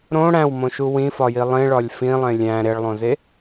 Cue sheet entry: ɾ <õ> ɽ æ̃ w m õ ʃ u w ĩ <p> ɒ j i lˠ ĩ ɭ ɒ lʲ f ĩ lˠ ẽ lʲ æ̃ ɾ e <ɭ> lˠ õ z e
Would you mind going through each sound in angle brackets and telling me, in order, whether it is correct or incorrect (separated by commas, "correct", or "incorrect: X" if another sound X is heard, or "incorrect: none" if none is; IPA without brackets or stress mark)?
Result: correct, incorrect: f, correct